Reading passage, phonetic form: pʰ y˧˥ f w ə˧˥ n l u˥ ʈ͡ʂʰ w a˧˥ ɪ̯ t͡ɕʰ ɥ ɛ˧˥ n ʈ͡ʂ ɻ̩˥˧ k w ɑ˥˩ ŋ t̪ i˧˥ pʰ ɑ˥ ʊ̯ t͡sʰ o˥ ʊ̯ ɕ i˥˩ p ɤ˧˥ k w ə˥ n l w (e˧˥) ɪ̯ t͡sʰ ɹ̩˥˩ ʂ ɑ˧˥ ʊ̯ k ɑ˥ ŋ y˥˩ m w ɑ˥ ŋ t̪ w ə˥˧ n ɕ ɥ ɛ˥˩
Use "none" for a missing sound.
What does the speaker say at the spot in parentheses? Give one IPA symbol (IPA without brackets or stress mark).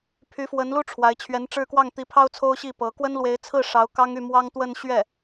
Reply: e˧˥